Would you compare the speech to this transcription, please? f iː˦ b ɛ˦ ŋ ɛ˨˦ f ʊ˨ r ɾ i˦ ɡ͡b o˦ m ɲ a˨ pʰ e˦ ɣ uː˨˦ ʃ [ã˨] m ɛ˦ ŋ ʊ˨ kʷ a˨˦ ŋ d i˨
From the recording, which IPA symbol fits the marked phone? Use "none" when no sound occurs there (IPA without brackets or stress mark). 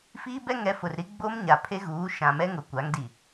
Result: ã˨